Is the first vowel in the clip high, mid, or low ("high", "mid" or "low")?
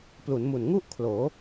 high